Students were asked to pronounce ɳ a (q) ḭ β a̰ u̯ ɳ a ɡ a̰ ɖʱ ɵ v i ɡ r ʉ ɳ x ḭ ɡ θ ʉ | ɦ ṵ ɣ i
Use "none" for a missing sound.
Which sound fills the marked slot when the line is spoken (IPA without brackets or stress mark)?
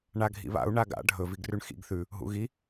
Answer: ɡʱ